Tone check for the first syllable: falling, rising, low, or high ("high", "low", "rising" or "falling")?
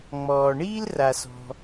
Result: low